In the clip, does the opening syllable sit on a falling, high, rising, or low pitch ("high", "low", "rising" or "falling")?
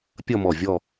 falling